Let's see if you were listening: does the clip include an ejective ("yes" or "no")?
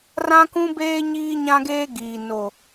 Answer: no